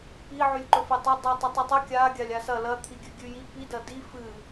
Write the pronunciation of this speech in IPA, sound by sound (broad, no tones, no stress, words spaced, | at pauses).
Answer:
pi ʕʉlʲǃɵfetˤo dˤitˤɨtˤɨtˤɵ kʲa ɡʲalʲasɐ lɐ t̪ʰiɡʲʉɡʲʉji pi dɐdi fɨ